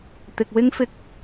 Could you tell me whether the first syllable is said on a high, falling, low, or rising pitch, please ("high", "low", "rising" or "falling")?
low